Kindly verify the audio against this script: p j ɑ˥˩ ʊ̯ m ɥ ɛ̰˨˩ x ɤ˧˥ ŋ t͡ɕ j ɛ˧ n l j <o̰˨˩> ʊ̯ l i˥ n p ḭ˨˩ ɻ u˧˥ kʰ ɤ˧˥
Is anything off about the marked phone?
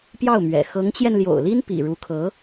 no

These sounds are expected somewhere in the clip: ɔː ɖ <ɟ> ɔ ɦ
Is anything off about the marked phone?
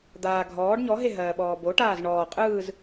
yes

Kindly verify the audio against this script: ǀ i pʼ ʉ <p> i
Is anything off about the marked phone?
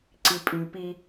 no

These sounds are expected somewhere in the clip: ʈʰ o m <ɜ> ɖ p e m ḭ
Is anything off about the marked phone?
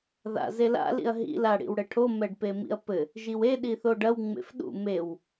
yes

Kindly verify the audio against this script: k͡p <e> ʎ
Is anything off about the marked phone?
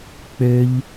yes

